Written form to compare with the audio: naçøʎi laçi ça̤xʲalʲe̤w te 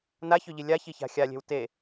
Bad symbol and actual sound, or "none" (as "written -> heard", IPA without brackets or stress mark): l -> lʲ